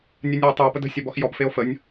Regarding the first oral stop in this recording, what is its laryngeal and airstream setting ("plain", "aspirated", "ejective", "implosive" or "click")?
plain